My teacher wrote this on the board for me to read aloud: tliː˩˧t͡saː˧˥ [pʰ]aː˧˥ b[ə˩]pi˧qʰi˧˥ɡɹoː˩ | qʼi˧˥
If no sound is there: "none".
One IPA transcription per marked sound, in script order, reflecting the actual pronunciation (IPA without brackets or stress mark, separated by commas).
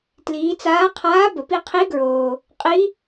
qʰ, ə˩